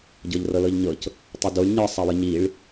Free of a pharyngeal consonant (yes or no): yes